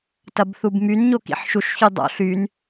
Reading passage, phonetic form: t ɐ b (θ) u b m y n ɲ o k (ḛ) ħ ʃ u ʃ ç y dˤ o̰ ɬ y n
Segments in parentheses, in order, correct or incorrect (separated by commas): correct, incorrect